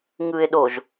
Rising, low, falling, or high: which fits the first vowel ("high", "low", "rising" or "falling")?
low